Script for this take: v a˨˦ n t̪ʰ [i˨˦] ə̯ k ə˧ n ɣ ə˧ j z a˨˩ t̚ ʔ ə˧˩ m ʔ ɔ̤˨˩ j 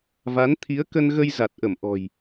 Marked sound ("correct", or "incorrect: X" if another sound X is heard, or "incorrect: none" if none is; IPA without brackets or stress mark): correct